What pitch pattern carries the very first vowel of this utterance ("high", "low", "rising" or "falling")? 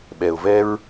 low